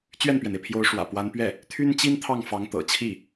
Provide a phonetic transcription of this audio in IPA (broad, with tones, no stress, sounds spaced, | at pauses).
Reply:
t͡ɕ ɥ ɛ˥˩ n p ɥ ɛ˩ n e˩ ɪ̯ pʰ j o˧˥ ʊ̯ ʂ w ä̰˨˩ p w a˧˥ n p ɥ ɛ˥˩ | t̪ʰ y˥ n t͡ɕ i˥ n t̪ʰ ɑ˥˩ ŋ f ɑ˧˥ ŋ t̪ ɤ̰˨˩ t͡ɕʰ i˥˩